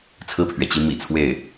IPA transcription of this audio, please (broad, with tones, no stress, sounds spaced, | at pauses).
t͡sʰ ɹ̩˥˩ pʰ ɥ ɛ˩ t͡ɕ i˧˥ m ḭ˨˩ t͡sʰ w e˥˩ ɪ̯